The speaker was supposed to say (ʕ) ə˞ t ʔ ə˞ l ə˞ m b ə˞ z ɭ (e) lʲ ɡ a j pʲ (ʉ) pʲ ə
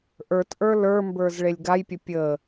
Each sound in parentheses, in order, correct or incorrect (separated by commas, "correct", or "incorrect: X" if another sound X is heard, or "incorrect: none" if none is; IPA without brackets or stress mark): incorrect: ʔ, correct, incorrect: ə